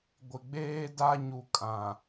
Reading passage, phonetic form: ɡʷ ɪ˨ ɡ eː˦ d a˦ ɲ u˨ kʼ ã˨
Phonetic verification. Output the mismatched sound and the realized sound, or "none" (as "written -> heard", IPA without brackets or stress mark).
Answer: ɡ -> ɡ͡b